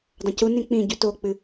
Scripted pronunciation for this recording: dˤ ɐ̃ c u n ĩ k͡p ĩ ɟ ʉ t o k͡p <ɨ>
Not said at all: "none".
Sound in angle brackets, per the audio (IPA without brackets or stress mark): ɨ